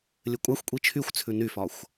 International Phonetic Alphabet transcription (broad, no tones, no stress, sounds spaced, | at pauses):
lʲ ɘ kʷʼ a xʷ kʷʼ i t͡ʃʰ y xʷ t͡sʰ ʉ n y f ɒ xʷ